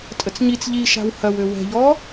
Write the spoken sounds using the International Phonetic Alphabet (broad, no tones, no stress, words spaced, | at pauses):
tʼət͡sɲit͡s ʎiʃa̤w hɐwø wɛ̤ʎɔ